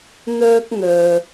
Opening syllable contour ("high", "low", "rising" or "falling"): high